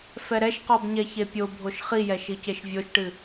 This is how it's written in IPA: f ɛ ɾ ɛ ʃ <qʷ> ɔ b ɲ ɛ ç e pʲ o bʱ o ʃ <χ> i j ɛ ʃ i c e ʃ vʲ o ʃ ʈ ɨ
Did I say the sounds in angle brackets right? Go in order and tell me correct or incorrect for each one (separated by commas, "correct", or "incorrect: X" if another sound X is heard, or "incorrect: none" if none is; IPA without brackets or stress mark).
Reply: incorrect: q, correct